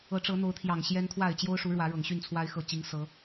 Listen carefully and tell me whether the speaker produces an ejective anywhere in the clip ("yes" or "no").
no